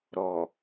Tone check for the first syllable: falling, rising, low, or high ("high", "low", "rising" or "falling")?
low